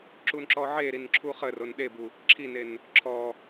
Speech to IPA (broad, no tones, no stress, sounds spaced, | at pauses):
ǁ u n ǁ ɔ ʕ e ɾ i n ǁʰ u χ ə r o n ɗ e b u | ǁʰ i n e n | ǁʰ ɔ